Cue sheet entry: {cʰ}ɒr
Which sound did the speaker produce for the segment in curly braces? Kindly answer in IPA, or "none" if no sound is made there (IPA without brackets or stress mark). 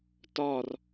t